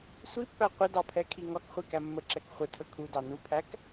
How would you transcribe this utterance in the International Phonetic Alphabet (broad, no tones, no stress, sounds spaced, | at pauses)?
sʷ i pː æ qʷ ɪ d ɑ pʰ ɛ kʰ i ŋ ɒ k χʷ i k æ mː ə ǁ ɛ k χʷ ə tʰ ə kʰ u d ɑ n u pʰ æ k